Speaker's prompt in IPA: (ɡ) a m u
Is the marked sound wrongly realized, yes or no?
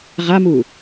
yes